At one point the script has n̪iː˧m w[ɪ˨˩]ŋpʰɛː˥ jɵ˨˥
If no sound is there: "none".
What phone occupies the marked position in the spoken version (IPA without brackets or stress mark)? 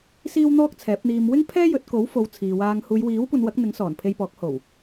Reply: ɪ˥